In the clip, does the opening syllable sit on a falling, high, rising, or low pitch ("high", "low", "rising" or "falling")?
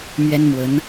high